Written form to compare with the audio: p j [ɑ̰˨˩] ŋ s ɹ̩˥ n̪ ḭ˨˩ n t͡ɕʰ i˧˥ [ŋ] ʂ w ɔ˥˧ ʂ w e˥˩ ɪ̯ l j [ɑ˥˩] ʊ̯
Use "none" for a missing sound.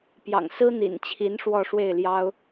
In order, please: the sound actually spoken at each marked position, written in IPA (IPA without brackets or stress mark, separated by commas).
ɑ̰˨˩, n, ɑ˥